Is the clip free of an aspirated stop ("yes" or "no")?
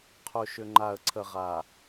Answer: no